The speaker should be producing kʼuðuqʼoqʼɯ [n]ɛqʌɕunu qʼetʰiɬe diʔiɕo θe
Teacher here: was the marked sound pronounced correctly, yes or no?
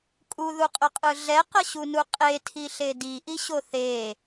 no